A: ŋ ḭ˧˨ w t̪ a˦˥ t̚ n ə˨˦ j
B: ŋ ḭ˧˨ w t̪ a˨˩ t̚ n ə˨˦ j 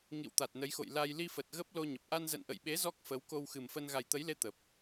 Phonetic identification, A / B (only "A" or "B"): B